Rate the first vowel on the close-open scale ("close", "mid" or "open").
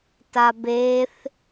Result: open